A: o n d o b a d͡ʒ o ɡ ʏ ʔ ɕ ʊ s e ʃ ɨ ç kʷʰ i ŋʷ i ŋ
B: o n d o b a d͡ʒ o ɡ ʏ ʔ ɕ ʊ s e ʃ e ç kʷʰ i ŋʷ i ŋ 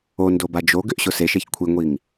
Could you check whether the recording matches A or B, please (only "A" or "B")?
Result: B